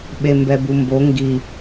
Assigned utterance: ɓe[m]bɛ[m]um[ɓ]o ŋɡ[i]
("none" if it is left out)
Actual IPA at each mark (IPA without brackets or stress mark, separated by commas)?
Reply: m, b, b, i